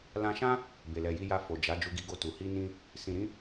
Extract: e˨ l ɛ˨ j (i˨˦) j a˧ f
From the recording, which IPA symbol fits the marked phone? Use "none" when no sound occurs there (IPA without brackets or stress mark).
i˧